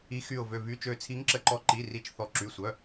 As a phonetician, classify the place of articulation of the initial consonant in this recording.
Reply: velar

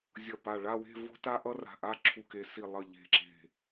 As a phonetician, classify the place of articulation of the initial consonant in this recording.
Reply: alveolar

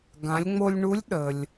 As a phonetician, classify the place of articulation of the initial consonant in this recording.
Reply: velar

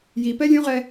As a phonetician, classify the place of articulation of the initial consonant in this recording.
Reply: palatal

